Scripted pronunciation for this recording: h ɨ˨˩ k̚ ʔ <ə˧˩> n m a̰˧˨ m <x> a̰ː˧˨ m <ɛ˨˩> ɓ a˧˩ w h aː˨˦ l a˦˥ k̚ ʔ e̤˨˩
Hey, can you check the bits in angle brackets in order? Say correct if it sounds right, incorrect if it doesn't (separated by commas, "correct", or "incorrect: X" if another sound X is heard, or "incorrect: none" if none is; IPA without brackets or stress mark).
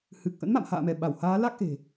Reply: incorrect: ə̰˧˥, incorrect: h, incorrect: ɛ˧˩